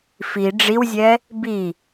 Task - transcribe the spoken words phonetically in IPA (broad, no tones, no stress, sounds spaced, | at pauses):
f i ɖ͡ʐ i w zʲ ɛ | b i